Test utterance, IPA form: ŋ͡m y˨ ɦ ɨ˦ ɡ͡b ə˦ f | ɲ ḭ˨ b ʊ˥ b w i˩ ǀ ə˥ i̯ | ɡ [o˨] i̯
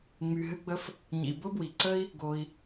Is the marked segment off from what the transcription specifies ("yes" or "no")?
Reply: no